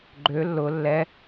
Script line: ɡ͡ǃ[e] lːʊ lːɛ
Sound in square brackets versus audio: incorrect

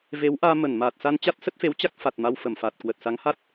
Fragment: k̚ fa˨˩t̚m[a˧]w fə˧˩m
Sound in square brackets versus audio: correct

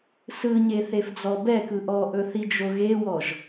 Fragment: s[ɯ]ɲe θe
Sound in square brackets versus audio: correct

